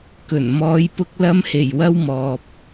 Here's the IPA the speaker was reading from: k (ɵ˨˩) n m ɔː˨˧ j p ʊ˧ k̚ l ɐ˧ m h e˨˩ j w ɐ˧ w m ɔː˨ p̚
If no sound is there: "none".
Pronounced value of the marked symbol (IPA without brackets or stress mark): ɵ˨˩